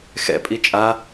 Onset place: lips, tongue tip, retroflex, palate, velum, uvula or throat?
velum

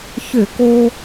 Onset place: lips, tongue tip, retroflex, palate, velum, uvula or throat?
palate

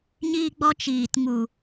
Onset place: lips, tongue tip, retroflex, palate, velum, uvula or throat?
palate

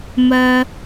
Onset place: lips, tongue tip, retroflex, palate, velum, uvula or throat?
lips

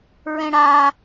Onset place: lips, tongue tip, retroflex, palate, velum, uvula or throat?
tongue tip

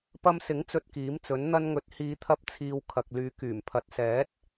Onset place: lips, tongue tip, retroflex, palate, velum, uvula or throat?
lips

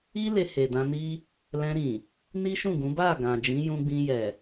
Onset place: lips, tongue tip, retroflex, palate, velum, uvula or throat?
tongue tip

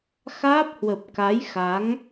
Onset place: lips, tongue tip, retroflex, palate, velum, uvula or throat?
velum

